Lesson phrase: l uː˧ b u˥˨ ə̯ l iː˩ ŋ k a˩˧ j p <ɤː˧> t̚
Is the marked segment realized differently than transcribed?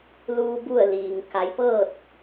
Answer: yes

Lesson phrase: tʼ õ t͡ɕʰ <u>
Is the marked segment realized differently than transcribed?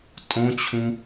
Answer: yes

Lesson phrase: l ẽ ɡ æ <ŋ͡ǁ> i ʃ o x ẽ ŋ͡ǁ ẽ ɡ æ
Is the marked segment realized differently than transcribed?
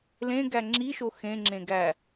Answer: no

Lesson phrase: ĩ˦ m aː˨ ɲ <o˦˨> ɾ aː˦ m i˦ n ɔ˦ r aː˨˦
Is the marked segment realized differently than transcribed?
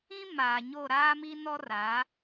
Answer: no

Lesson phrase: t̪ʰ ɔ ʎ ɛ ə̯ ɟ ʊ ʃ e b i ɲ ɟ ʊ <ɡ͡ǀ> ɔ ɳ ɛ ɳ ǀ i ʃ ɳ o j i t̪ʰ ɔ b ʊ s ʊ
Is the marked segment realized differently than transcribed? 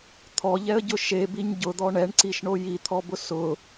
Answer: yes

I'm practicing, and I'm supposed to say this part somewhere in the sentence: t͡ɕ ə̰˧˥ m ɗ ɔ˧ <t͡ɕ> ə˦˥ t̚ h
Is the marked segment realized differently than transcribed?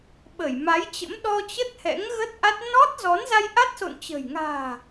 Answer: no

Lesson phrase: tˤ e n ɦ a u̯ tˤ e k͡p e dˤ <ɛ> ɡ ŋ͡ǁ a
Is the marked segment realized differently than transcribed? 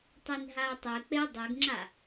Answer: yes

